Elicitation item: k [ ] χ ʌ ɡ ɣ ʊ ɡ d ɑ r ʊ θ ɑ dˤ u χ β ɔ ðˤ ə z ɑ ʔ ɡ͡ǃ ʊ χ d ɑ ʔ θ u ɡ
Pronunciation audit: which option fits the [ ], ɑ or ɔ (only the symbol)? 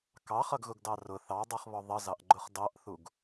ɑ